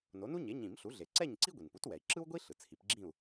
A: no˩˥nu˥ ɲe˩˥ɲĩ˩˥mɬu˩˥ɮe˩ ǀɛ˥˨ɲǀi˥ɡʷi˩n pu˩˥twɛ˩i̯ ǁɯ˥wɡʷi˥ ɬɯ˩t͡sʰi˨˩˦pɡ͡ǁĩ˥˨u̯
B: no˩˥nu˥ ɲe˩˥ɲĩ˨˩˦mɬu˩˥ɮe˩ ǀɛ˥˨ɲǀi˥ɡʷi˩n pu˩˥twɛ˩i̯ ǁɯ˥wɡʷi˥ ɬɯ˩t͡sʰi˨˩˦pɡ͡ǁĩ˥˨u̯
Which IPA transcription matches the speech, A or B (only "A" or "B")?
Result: B